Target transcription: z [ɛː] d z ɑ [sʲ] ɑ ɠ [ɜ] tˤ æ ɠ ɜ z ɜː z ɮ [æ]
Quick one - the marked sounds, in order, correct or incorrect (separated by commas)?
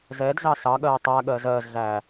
correct, incorrect, incorrect, incorrect